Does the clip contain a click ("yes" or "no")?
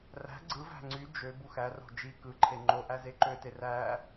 yes